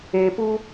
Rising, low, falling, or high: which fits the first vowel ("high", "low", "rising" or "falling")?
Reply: low